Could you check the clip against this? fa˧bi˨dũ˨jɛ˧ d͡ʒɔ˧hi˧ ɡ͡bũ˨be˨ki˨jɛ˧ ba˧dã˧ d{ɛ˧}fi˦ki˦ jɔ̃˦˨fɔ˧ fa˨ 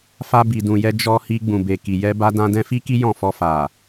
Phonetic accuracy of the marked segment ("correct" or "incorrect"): incorrect